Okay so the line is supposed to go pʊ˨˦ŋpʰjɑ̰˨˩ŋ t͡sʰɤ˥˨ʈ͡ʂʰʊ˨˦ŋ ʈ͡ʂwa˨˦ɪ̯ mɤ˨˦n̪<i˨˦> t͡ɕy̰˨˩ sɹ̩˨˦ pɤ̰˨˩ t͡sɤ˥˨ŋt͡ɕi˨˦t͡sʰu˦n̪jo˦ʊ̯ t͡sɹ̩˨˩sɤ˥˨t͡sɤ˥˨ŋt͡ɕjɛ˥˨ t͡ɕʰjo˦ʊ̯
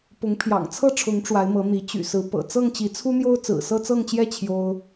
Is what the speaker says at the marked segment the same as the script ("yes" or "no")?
yes